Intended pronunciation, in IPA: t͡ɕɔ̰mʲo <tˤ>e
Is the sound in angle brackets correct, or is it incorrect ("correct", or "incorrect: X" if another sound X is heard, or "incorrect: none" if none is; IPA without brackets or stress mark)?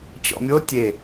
incorrect: tʲ